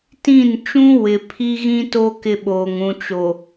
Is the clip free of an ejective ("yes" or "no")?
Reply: yes